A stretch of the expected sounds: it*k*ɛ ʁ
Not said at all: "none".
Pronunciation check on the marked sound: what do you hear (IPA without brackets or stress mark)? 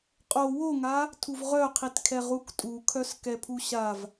kʰ